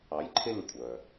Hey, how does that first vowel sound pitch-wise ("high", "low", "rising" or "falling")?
rising